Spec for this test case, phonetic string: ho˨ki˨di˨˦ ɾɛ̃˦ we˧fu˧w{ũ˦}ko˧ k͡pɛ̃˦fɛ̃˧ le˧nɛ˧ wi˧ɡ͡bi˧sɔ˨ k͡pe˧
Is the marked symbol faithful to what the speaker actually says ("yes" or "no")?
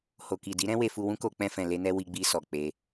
yes